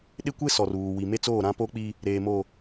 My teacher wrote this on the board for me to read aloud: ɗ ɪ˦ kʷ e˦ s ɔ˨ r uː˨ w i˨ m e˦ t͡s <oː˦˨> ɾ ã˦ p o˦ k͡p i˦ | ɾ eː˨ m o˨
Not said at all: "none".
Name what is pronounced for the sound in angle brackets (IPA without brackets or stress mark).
oː˦˨